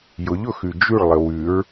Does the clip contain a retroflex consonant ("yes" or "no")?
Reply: yes